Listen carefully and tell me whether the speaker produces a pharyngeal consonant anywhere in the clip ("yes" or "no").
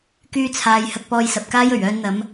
no